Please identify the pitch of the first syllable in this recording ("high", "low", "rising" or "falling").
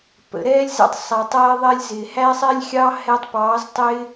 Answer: low